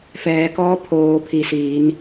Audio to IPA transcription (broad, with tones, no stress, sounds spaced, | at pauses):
f ɛː˩˧ k ɔː˧˥ pʰ oː˩˧ pʰ i˩ s iː˩˧ n